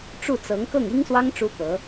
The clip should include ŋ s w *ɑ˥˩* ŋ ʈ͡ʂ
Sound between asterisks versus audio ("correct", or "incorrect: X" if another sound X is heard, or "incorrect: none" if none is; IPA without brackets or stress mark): incorrect: ɑ˥